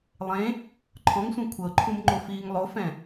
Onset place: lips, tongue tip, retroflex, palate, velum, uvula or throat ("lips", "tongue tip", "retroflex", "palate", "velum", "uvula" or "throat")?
tongue tip